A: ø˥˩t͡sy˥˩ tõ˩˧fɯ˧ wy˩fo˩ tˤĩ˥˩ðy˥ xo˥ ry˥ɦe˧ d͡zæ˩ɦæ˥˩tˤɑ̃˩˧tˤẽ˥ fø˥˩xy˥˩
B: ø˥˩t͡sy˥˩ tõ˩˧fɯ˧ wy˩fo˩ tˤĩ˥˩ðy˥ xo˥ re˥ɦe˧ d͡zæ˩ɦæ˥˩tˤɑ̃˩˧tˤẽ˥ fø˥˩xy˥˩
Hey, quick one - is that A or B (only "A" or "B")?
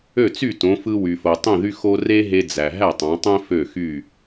B